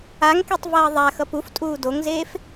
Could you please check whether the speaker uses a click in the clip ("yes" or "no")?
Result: no